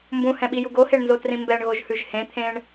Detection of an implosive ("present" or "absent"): present